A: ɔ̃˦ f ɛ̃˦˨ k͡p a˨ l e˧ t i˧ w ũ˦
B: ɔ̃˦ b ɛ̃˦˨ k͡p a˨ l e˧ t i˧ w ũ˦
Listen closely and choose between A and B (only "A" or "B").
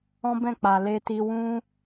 B